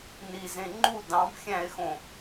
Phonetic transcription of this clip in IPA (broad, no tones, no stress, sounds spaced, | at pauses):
n i z ẽ ŋ͡ǃ u d ɑ̃ b xʲ æ̃ e̯ x õ